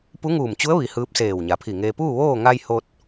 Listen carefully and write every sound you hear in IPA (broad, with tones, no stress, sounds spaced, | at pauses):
p u˧˥ ŋ uː˧˩ m t͡ɕ u˧˥ ə̯ ʋ i˩˧ h ɯː˧˥ p̚ s eː˧˩ w ɲ a˩˧ pʰ i˧˩ ŋ eː˧ p uː˥˨ ʋ oː˥˨ ŋ a˧ j h o˧ t̚